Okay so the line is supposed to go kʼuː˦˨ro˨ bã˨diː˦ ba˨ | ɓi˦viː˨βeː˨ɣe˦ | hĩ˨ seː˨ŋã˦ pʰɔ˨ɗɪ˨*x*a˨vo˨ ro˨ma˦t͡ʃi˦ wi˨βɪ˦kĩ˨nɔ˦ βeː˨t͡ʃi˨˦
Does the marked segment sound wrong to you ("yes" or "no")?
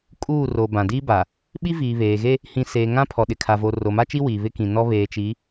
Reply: yes